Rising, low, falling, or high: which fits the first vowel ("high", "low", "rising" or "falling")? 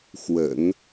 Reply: low